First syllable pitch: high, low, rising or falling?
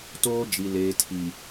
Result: high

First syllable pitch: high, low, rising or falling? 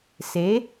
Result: rising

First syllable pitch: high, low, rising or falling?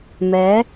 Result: rising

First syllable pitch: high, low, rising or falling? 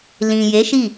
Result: low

